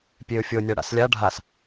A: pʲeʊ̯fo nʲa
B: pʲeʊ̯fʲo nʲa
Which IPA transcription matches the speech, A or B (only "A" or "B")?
B